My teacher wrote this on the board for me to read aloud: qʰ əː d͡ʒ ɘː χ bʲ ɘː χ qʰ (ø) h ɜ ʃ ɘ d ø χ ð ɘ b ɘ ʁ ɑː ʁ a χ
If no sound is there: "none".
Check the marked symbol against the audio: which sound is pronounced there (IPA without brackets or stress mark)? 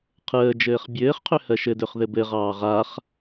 ø